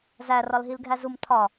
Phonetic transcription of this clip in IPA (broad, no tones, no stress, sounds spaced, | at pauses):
z æ r ɒ l ɦ i l ɡʱ æ z u m tʰ ɒ